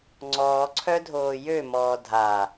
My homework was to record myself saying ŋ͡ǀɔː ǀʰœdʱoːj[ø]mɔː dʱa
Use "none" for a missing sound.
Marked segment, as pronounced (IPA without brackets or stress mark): ø